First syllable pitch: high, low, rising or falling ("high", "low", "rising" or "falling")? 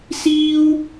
high